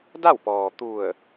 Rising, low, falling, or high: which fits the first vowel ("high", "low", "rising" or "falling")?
falling